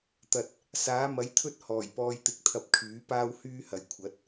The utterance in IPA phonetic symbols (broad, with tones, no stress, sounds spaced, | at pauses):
t̪ ɐ˨ t̚ | s aː˨˥ m ɐ˨˥ j t̪ʰ ɵ˥ t̚ h ɔː˨˩ j p ɔː˧ j t̪ ɪ˧ k̚ t̪ʰ ɐ˧ p̚ kʰ yː˨˥ p aː˥ w h yː˥ h ɐ˨ j kʷʰ ɐ˨˥ t̚